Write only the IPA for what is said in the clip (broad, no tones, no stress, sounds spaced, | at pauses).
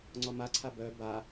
ŋ͡ǀ ɔ m a ǀʰ a b œ b a